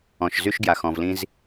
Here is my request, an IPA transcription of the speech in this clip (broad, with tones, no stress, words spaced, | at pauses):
ɔ̃˨ʃzy˦ʃɡja˨x ɔ̃˨vlĩ˦z